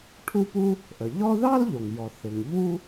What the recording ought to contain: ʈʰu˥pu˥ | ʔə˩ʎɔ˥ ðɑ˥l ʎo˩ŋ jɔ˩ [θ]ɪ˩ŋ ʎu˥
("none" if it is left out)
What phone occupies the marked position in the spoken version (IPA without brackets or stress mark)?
θ